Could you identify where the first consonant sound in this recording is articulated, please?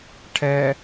retroflex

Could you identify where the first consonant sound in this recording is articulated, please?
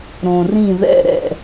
alveolar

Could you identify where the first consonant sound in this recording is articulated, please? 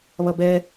labial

